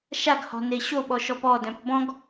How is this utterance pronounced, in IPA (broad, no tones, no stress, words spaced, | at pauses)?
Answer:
ʃaɡhɔ̤ neɕoɓɔ ʃɔpɔdœ̃p bɔ̃ɡ